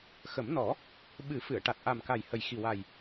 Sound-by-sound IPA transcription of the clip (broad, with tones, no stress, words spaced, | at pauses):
xə˨˩˦mnɔ˨˩˦ | ɓɨ˨˩˦ fɨ˨˩˨ə̯ ʈa˨˩t̚ʔa˨˩mka˨˩j hə˨˩jxi˨˩wa˨˩j